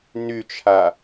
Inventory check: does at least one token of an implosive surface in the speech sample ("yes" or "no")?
no